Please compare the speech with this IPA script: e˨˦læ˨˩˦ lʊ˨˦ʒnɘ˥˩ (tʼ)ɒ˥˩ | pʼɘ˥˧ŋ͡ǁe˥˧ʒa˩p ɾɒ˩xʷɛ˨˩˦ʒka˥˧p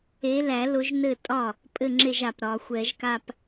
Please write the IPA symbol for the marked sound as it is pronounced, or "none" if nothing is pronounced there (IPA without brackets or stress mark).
tʼ